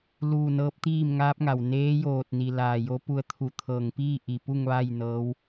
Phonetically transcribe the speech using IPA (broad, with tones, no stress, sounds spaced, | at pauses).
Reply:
l uː˥˨ n ɤː˧˥ p̚ t̪ iː˥˨ m ŋ aː˧˥ p̚ ŋ a˩ w n eː˧˥ j oː˧˩ t̚ n i˩ l aː˧˩ j o˧˥ p u˧ ə̯ t̪ʰ u˧˩ t̪ʰ ɤː˧˩ ŋ p iː˥˨ ʔ i˧˩ p u˥˨ ŋ ʋ a˥˨ j n ɤː˧˥ w